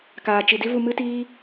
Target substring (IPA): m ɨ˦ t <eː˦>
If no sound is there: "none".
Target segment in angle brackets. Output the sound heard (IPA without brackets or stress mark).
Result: iː˦